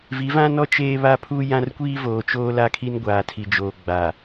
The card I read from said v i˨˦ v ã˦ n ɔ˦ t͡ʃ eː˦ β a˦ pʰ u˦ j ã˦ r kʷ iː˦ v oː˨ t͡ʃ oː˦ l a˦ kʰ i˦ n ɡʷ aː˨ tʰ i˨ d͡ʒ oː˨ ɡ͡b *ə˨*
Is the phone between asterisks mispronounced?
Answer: yes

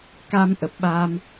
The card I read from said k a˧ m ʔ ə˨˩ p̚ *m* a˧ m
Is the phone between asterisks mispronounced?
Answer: yes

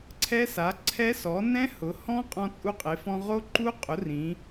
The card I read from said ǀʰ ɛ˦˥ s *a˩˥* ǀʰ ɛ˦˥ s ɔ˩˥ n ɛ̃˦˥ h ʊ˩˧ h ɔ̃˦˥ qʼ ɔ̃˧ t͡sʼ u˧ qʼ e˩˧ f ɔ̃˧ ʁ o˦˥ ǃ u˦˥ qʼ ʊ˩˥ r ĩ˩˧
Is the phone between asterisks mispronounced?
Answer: no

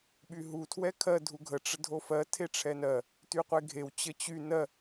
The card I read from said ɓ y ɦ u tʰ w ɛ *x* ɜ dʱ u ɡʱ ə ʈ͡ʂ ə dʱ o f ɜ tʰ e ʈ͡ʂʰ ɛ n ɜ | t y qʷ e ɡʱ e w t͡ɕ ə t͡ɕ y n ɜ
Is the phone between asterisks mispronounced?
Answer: yes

